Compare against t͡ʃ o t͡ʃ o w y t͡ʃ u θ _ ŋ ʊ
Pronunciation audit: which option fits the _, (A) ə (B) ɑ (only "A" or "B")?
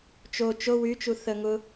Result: A